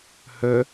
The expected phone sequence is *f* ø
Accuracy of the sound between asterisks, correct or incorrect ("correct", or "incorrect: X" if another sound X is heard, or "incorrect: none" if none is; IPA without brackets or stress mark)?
incorrect: h